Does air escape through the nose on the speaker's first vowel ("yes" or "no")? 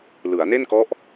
no